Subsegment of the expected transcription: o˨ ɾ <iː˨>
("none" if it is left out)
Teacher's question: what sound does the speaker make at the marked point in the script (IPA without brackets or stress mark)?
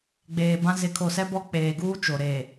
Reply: eː˨